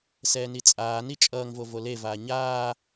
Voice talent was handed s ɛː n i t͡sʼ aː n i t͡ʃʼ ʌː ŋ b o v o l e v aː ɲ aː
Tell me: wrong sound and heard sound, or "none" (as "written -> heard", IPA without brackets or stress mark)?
b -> v